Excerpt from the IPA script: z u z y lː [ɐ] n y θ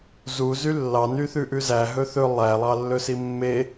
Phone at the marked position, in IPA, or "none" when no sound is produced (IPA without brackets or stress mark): ɑ